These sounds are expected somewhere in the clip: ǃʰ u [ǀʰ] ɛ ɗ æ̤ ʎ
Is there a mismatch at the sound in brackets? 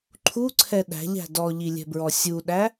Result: no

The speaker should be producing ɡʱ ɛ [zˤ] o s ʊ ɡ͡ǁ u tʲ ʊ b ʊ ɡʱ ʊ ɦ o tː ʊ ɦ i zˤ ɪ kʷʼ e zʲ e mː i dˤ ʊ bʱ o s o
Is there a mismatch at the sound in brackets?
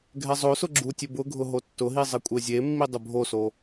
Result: no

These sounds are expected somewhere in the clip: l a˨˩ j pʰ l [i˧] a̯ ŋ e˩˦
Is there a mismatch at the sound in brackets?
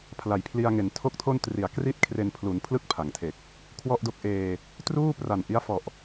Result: no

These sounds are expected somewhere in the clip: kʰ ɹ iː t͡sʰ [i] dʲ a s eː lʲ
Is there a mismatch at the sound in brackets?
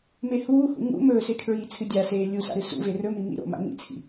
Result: yes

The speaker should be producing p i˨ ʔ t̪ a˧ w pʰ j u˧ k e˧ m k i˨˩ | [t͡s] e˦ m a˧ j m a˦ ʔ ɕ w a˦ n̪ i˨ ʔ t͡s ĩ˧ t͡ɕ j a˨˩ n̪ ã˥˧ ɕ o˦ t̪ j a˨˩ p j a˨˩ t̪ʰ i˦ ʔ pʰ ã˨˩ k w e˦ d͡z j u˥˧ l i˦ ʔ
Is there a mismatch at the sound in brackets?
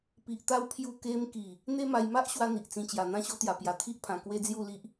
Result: yes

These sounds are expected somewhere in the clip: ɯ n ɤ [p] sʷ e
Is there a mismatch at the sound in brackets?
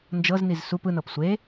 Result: no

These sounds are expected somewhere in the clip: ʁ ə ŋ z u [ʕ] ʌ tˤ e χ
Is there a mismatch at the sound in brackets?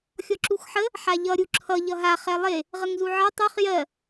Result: no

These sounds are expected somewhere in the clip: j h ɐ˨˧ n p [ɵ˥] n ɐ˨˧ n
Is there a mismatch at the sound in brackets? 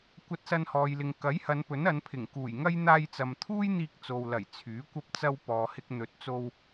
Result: yes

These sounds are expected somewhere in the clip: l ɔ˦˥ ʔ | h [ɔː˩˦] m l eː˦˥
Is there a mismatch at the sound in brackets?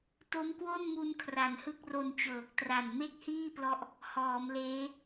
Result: no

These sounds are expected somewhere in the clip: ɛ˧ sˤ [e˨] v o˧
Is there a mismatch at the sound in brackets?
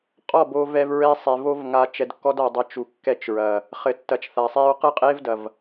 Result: no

